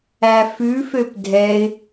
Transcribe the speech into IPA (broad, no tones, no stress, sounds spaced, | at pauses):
æ f ʉ f ø p dʱ ɛ ɪ̯